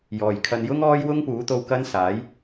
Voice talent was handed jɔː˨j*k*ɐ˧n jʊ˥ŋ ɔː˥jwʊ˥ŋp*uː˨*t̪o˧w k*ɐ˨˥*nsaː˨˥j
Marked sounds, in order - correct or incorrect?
incorrect: kʰ, incorrect: uː˨˥, incorrect: ɐ˥

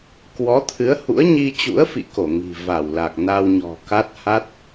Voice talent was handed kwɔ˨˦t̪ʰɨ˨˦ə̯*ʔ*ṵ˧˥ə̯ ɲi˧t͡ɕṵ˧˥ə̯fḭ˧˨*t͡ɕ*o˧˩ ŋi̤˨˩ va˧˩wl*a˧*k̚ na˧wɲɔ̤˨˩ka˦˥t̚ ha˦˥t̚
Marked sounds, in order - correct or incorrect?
incorrect: h, incorrect: k, incorrect: a˨˩

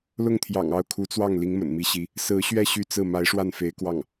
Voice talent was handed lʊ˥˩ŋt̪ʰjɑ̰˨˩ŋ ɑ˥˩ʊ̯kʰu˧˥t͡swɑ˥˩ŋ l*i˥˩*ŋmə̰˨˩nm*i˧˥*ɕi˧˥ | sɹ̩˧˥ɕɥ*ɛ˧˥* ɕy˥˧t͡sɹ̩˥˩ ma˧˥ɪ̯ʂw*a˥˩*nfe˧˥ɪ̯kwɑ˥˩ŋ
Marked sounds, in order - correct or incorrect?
incorrect: i˧˥, correct, incorrect: ɛ˥˧, correct

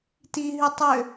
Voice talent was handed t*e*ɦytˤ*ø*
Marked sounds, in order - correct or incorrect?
incorrect: i, correct

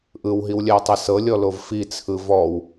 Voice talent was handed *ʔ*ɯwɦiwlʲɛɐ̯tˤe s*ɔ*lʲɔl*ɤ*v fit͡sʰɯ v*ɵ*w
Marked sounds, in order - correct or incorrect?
correct, incorrect: ɤ, incorrect: o, incorrect: ɔ

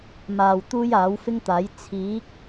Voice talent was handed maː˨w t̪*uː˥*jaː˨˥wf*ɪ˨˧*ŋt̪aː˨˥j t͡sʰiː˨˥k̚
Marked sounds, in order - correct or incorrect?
correct, incorrect: ɪ˥

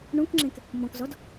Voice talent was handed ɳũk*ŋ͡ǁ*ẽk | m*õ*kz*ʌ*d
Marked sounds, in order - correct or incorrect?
correct, incorrect: ɔ̃, incorrect: ɔ

